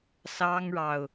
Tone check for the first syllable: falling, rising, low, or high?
high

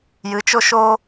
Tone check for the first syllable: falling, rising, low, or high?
rising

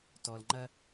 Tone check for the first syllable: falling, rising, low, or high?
low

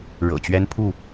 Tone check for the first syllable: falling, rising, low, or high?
low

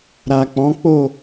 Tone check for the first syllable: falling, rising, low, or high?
low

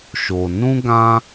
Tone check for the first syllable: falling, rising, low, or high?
low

